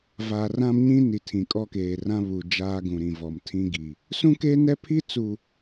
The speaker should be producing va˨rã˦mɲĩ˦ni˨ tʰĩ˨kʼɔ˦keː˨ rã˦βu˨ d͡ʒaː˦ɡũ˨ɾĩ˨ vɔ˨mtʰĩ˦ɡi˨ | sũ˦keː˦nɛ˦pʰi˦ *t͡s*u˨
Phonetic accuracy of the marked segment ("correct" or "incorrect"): correct